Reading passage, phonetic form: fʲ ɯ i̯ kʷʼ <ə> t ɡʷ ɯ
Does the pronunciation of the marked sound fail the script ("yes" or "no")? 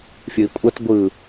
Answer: no